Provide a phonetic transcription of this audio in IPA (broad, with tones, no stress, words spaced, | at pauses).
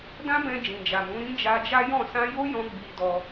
dã˦bɛ̃˧ d͡ʒĩ˨d͡ʒa˨mũ˨˦ ɾĩ˦ d͡ʒa˧d͡ʒa˦jɔ̃˦˨ sã˧jo˦jɔ̃˧ ɡ͡bi˧dɔ˧